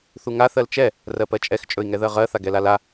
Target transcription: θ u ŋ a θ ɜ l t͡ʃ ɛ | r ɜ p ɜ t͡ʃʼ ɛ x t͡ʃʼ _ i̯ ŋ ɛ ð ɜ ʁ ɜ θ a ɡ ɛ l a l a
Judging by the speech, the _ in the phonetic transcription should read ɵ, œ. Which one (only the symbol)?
ɵ